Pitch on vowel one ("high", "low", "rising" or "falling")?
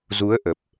rising